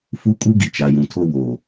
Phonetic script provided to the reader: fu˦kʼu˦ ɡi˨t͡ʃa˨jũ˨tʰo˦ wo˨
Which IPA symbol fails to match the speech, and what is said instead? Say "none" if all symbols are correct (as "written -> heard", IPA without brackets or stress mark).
none